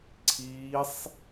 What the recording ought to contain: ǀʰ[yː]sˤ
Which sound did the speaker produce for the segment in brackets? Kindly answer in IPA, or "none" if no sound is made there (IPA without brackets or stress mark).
iː